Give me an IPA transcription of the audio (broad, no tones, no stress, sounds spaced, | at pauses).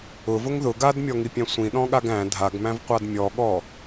ʊ v ʊ ŋ ð ʊ ɡ a d mʲ ɔ ŋ i pʲ æ̃ sʷ ĩ ɗ ɔ̃ ɠ a ɡ æ̃ dʱ a ɡ m æ̃ v qʷ a d mʲ ɔ ɠ ɔ